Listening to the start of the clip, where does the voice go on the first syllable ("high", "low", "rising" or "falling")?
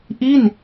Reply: falling